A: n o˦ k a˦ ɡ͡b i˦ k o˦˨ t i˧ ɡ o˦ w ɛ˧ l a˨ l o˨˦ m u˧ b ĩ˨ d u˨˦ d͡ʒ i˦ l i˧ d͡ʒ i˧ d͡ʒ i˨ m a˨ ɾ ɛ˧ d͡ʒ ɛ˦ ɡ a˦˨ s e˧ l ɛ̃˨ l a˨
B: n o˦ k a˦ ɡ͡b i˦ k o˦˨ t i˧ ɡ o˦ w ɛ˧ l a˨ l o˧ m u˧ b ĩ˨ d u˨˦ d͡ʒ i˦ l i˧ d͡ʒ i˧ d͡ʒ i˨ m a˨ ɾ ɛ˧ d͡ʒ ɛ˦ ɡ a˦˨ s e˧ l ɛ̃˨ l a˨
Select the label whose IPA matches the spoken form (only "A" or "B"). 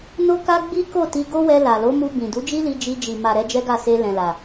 A